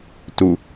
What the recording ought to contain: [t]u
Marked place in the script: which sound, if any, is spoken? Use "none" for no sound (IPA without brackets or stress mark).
t